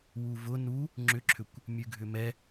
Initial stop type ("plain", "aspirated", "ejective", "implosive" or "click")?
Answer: click